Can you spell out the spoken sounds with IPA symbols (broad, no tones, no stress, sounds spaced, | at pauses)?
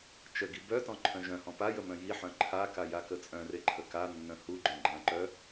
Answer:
t͡ʃ ə ɡ i b œ t ɔ̃ ǃʰ œ̃ ʒ œ̃ h ɔ̃ p a j ə m œ̃ j i ħ œ̃ ǃʰ a k a j a k ə t͡sʼ œ̃ r e ǃʰ ə k a nː œ̃ h u ɡ͡ǃ œ̃ ɡ͡ǃ ã ǃ œ